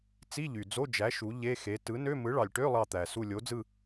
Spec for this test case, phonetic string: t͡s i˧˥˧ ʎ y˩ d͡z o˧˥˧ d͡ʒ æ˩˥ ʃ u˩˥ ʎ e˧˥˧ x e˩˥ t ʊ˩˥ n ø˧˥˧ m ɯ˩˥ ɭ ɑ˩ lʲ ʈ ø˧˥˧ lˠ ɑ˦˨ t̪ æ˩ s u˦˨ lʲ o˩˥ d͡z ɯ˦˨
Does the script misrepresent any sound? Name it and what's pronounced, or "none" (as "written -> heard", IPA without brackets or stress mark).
ʊ˩˥ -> ɯ˩˥